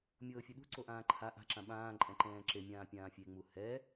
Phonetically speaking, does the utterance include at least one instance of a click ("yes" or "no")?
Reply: yes